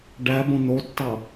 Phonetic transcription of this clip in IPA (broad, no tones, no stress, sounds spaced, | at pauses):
ɖ æ b õ n̪ o tː ɑ